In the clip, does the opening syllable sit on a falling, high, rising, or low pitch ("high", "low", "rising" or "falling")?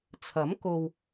rising